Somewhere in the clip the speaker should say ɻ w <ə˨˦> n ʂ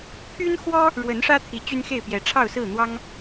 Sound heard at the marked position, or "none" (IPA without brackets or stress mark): ə˨˦